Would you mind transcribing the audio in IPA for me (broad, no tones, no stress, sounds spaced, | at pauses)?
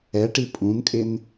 ɛ ʈ i pʼ ũ n kʼ ɪ n